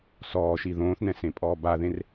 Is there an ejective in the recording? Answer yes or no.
yes